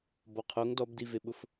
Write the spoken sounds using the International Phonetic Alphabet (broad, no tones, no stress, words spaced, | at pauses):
bɔqʰoŋ dɔbdiveɓʊf